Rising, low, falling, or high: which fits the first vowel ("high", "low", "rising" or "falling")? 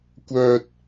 high